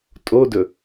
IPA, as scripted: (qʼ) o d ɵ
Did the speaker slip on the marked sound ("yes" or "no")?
yes